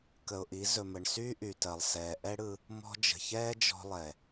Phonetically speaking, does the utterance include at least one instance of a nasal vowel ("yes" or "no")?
no